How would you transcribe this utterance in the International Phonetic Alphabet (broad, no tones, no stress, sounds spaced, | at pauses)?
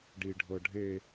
ɖ i ɖʱ ɤ ɖʱ e